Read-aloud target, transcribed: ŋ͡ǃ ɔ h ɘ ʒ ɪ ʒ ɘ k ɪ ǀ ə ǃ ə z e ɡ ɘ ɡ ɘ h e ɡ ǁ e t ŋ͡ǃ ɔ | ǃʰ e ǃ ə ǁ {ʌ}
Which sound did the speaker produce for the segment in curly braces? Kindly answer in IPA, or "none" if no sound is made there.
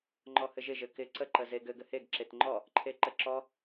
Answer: ɔ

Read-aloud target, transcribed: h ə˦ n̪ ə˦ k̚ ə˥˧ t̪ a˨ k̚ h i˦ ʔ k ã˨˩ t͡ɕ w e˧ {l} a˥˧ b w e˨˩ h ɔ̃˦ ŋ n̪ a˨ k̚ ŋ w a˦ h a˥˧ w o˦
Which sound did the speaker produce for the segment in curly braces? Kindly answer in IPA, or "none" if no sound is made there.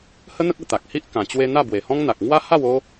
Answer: n̪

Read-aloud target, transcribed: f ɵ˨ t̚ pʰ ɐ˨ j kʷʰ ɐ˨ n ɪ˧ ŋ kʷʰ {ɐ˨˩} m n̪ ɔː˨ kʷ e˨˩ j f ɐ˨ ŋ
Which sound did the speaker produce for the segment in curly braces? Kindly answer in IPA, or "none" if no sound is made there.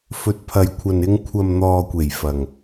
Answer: ɐ˨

